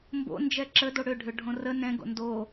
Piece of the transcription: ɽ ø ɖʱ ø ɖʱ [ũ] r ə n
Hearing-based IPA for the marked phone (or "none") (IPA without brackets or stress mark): õ